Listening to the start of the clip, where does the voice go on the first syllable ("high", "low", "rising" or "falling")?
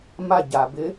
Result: falling